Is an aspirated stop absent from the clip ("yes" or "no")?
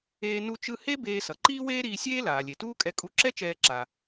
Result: yes